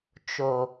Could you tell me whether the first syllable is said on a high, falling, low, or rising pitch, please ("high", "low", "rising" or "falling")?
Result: low